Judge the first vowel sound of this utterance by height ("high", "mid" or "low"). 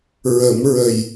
mid